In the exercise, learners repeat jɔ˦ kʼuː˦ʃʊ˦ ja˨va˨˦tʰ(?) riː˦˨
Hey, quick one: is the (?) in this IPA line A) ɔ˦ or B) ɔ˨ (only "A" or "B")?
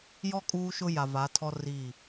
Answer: A